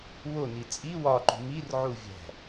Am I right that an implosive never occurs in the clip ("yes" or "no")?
yes